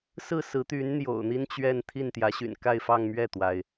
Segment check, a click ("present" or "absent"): absent